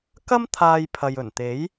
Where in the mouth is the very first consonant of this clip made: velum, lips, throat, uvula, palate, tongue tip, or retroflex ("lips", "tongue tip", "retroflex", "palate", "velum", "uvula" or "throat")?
velum